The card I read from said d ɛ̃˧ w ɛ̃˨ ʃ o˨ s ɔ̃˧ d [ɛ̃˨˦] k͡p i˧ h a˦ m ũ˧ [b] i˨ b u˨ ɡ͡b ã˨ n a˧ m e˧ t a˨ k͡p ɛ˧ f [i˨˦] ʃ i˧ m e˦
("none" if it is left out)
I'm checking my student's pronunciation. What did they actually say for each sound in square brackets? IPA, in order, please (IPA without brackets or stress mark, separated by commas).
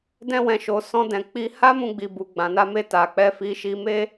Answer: ɛ̃˨, ɡ͡b, i˧